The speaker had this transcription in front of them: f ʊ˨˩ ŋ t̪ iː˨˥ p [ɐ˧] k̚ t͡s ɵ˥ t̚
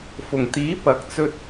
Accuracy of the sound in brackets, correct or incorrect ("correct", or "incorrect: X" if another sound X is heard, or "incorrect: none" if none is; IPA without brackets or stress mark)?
incorrect: ɐ˨˥